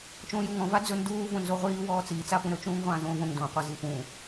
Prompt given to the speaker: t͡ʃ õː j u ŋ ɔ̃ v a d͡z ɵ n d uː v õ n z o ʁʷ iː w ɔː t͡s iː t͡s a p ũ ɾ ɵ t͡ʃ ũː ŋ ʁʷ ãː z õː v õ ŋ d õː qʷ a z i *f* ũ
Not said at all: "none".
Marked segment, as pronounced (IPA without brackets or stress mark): f